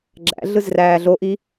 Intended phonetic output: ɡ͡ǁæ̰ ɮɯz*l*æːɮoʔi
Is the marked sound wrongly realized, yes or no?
yes